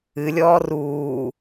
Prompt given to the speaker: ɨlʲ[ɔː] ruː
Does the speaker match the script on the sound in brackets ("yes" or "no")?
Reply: yes